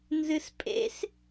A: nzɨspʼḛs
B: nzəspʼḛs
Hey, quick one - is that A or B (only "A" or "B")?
A